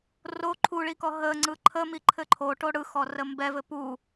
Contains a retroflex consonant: yes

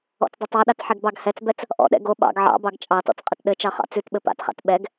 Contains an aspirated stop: no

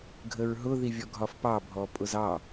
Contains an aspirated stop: no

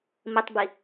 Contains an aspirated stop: no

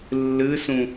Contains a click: no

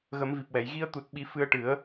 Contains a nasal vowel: no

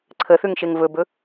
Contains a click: yes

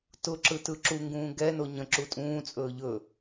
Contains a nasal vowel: yes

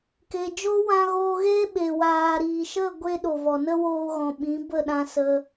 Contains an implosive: yes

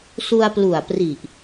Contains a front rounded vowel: no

